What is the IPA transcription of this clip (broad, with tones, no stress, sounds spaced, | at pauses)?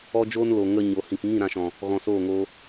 ɔ˧ d͡ʒ oː˧ n l o˨ ŋ ə˧ ɲ o˨ h ĩ˨ k ŋ ĩ˦˨ ɾ ã˧ ʃ ɔ̃˨ | ɣ ɔ̃˨ s oː˦˨ ŋ oː˧